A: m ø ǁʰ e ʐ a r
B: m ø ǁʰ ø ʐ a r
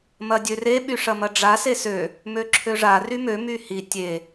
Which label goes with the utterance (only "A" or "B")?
B